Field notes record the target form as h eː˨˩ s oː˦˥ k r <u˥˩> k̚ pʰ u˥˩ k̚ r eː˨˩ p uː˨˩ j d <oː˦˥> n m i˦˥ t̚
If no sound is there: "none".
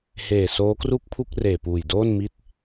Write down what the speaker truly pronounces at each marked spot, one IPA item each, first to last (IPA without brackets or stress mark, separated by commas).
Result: u˥˩, oː˥˩